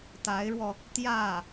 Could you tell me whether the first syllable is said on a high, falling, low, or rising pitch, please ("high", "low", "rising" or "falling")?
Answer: rising